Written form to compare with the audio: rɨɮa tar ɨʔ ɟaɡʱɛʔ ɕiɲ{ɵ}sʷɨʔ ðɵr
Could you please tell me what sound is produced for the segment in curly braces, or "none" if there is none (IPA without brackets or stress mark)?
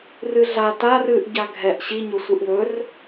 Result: ɵ